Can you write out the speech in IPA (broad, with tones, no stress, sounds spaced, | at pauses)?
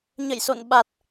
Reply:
ɲ ə̰˧˨ j s o̰˧˨ n ɓ a˨˩ t̚